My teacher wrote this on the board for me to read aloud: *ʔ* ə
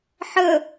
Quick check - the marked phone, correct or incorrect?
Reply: incorrect